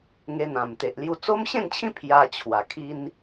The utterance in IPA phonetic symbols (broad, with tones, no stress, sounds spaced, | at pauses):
ŋ e˧ n̪ ã˨˩ m t̪ e˨ ʔ l j u˧ t͡s o˦ m ɕ ẽ˥˧ n t͡ɕʰ ĩ˥˧ pʰ j a˧ t͡ɕʰ w a˨˩ kʰ i˦ n